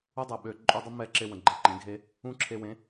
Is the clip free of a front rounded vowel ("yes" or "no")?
no